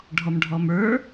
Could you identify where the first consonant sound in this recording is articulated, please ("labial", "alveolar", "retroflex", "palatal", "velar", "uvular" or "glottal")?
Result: retroflex